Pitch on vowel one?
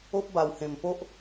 high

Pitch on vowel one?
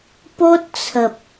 high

